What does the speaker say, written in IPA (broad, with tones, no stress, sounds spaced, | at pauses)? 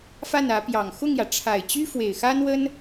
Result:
f a˥˩ n ä˧˥ p j ɑ˨˩ ŋ x ʊ˥˩ ŋ j ä˩ ʈ͡ʂʰ a˨˩ ɪ̯ t͡ɕ y˥ f w e˨˩ ɪ̯ x a˥ n w ə˥ n